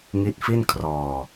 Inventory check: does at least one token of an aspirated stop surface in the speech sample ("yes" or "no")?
yes